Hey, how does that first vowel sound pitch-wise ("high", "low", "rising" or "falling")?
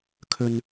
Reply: high